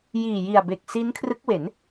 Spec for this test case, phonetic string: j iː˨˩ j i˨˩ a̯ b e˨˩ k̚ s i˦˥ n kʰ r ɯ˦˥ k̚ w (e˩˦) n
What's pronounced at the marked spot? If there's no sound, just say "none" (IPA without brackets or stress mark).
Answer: e˩˦